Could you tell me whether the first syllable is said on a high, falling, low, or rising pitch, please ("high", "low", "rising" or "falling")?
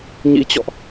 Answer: rising